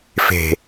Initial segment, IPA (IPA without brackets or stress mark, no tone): f